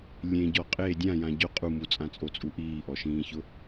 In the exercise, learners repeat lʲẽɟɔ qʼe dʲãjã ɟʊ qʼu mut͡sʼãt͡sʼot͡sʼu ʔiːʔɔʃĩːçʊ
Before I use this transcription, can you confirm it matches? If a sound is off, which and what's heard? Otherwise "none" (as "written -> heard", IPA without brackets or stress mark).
none